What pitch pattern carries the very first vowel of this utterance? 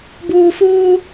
low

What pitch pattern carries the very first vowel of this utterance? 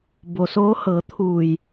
low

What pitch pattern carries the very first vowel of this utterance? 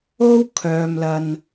high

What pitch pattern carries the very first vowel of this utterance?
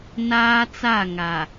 high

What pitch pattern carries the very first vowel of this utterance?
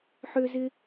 high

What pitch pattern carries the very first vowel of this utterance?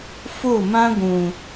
falling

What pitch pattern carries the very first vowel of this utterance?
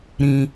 low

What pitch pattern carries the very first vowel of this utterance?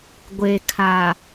low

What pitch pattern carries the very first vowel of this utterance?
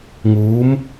rising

